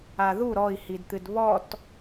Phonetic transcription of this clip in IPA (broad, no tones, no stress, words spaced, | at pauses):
aðu ɾɔi̯hidt̪ɨd βɔt